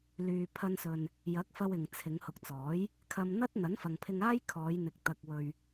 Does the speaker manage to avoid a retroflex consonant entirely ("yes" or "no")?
yes